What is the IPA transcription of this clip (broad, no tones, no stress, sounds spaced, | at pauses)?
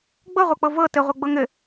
ɡ͡b ɤ ʁʷ ɤ k͡p ɤ v ɤ t ɘ ʁʷ ɤ ɡ͡b ɤ ŋ ɘ